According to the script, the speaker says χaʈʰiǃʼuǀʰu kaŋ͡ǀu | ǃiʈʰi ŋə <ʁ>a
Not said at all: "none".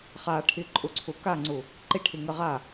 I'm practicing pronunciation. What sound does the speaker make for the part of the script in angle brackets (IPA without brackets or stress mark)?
ʁ